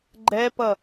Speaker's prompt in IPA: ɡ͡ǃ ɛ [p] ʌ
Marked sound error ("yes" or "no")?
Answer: no